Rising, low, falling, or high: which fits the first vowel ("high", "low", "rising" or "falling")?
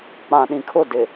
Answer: low